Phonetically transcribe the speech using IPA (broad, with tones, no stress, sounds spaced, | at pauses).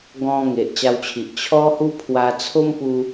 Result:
ɡ ɔ̃˦ ŋ e˨ ʔ t͡ɕ a˧ w t͡ɕʰ i˨ ʔ t͡ɕʰ ɔ˦ h u˦ pʰ w a˧ t͡sʰ o˦ m p u˧